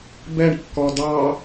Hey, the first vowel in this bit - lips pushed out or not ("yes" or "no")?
no